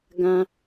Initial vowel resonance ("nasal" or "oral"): nasal